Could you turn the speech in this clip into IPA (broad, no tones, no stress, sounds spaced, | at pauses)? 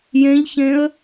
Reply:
j ẽ ʎ ç ẽ ə̯